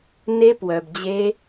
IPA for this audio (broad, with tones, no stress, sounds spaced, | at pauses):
n e˦˥ p w œ˨ b d͡ʑ e˦˥